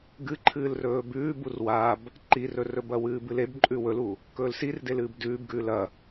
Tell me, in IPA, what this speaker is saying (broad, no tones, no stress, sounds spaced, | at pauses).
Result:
ɡ ɨ ǃʰ ɨː l r ɵː b ʉː b u r w a b | ǃ i r ɵ r ɵ b ɐ w ɨː b ɨ l e b ǃʼ ʉ w ɵ l u | k ɵː l s i r d e l ɨː b d ʉː b ɡ ʉː l ɐ